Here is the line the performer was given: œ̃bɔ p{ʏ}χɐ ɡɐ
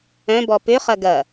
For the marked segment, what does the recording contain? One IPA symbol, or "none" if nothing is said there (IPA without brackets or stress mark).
ʏ